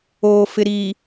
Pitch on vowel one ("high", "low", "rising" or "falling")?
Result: low